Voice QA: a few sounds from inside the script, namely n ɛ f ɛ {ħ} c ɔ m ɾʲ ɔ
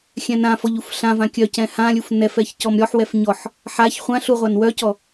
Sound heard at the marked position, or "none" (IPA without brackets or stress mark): ç